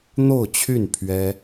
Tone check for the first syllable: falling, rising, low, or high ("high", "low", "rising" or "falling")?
falling